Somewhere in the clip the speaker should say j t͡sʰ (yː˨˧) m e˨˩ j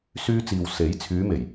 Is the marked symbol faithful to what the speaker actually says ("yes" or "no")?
yes